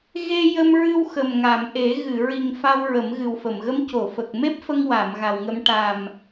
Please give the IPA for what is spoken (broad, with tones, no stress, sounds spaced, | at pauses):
ɣ e˧ j ə˧ m ɹ ɨ˧ w x ə˨˩ m ŋ a˨˩˨ m ʔ e˨˩˦ ɣ ɨ˨˩˨ ɹ i˨˩ ŋ f a˧ w ɹ ə˨˩˦ m ɣ ɨ˨˩ w f ə˨˩˨ m ɣ ə˧˥ m c o˨˩˨ f ə˨˩ k̚ m e˦˥ p̚ f ə˧ ŋ w a˨˩˨ m ɣ a˨˩ w ŋ ə˧ m ʈ a˨˩ m